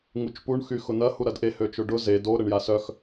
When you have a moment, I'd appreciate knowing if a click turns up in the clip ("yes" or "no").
no